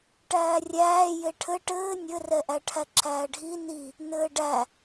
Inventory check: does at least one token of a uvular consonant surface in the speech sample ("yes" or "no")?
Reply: no